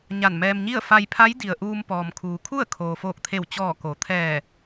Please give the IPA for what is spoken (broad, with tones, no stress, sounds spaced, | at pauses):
ɲ a˧˩ n m ɛː˧ m ɲ i˥˨ ə̯ f a˧ j pʰ a˧˥ j d i˩ ə̯ ʔ uː˧ m p ɔː˩ m kʰ uː˩ kʰ u˥˨ ə̯ kʰ oː˩ f oː˧˩ k̚ t̪ʰ e˧˩ w t͡ɕ ɔː˧˩ k o˩˧ t̪ʰ ɛː˧˩